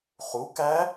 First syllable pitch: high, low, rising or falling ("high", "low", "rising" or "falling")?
rising